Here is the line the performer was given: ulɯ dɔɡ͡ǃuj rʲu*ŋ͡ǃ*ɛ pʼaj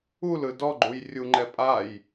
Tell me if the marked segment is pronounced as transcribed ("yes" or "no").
yes